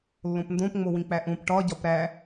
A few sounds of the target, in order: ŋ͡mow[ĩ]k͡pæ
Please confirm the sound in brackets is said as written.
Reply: yes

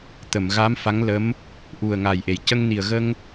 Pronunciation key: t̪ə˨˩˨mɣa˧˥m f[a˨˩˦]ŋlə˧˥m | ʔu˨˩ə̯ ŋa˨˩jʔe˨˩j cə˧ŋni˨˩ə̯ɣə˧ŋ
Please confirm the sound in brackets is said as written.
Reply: no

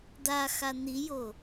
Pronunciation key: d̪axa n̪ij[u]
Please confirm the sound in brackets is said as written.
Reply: no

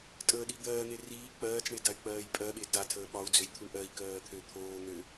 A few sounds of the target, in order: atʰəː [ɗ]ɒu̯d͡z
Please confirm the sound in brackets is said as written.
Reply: no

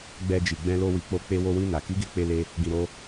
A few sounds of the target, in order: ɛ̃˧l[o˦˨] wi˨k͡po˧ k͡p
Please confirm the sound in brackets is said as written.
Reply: no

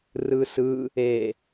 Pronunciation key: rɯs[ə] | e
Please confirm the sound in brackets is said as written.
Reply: no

